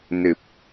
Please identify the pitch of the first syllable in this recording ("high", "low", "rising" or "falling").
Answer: low